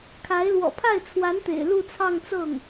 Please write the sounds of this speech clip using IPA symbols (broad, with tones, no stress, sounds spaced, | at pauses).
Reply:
kʰ a˧˥ ɪ̯ l w ɔ̰˨˩ pʰ a˥˩ ɪ̯ t͡sʰ w a˧˥ n t̪ ḛ˨˩ ɪ̯ l u˥˧ t͡sʰ ɑ˥˧ ŋ t͡s ɤ˥˩ ŋ